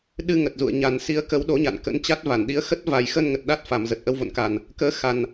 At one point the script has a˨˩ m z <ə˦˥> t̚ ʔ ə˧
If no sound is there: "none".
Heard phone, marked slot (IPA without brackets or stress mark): ə˨˩